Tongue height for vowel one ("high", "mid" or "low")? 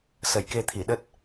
mid